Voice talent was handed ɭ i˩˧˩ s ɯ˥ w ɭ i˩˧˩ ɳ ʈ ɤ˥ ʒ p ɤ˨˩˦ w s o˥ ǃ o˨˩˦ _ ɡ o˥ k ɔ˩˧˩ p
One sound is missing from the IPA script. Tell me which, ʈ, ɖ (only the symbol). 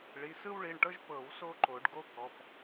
ɖ